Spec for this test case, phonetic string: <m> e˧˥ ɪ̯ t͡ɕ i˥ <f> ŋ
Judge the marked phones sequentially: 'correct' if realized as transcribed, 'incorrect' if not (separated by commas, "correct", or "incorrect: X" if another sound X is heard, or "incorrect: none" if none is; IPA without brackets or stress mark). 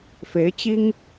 incorrect: f, incorrect: none